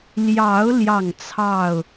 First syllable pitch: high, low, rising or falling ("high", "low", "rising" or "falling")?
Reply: rising